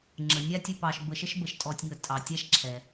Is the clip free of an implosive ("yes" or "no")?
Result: yes